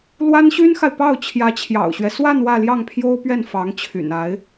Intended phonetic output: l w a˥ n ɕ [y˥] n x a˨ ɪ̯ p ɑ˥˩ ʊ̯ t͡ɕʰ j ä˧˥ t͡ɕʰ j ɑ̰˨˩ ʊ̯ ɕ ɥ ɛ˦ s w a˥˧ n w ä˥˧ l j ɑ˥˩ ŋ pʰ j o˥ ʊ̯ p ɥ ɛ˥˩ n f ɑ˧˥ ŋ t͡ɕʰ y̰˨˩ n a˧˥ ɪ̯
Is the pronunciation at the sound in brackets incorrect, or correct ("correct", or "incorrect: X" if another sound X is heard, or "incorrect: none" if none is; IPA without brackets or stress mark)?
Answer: correct